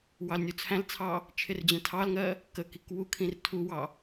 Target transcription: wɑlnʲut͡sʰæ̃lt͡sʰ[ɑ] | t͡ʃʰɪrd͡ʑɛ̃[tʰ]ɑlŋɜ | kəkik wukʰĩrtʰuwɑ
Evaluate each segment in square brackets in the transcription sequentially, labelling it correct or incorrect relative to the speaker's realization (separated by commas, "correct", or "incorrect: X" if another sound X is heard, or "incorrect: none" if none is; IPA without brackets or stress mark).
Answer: correct, correct